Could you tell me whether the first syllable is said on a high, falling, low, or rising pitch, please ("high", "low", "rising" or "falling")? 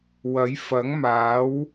rising